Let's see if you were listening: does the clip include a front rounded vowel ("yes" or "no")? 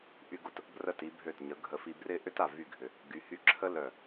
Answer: yes